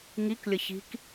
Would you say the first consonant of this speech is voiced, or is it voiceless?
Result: voiced